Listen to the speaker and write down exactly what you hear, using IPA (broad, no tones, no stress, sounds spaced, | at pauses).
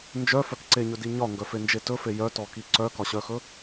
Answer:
n d͡ʒ œ f œ k ǀ e ɲ ɵ d i ɲ ɒ ŋ ɡ œ f e n d͡ʒ e t ɵ f e j œ t ɔ k i ǀ œ k ɒ ɕ œ x ɵ